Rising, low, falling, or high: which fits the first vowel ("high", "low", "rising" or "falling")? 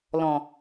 low